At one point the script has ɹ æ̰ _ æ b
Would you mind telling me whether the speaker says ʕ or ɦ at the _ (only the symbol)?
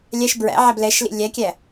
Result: ʕ